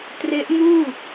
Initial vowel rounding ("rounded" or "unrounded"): unrounded